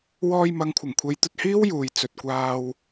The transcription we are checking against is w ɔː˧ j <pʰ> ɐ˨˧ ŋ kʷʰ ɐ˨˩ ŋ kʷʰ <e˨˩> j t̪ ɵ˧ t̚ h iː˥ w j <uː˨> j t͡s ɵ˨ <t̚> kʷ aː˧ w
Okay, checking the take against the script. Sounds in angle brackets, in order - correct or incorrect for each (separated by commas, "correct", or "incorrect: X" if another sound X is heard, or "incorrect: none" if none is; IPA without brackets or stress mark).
incorrect: m, incorrect: e˨˧, correct, correct